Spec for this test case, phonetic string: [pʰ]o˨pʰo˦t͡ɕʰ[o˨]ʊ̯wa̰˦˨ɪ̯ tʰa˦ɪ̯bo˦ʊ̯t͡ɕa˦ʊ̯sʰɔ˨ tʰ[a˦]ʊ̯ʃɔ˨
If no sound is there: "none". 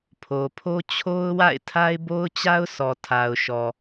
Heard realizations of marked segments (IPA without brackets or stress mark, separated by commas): pʰ, o˦, a˨